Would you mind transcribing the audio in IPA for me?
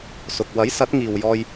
s ʊ˨ k̚ w ɐ˨˥ j s ɐ˨˥ t̚ ŋ iː˨ w j ɔː˧ j

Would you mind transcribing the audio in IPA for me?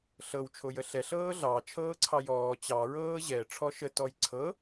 ɬ ɤ w t͡ʃʰ o j ə ɬ ɛ ɬ ɤː ɮ ɑ t͡ʃʰ ɤː ǀʰ ɑ j ɔː t͡ɕ ɑ ɹ ɤː ʑ ɛ ʈ͡ʂʰ ɔ ʃ ə t ɔ j ǀʰ ɤ

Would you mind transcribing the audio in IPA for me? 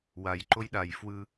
w a j ǃ o j ɗ a j f w ɯ

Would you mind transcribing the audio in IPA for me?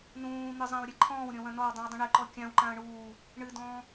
n ũː n̪ ɨ zˤ ã w ɾʲ ɛ ǃʰ ɔ̃ː w ɾʲ ɔ̃ w ɐ̃ n ɔ w dˤ ĩ w dˤ ũ ɳ ɘ ǃ ɔ kʲ ã w ǃ ã ə̯ ɳ uː | ɳ ɨ d ɔ̃ː

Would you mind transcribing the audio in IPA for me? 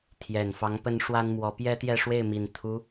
t̪ʰ j ɛ˨˩ n f ɑ˧˥ ŋ p ə˥ n ʂ w a˥ n m w ɔ˧˥ p j ɛ˥ t̪ j ɛ˥˧ ʂ w e˥˩ ɪ̯ m i˨˩ n t̪ʰ u˧˥

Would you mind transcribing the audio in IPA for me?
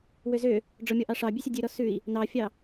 w ø z ø | ɖ͡ʐ ɔ mʲ ɔ ʔ ɑ ʂ ɑ bʲ ʉ sʲ ɔ dʲ ʉ ɾ ɔ s ʉ i̯ | n ɑ fʲ ɑ

